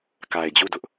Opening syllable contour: low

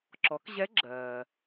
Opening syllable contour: rising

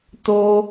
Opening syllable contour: high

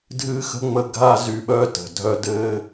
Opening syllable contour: high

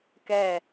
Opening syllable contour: falling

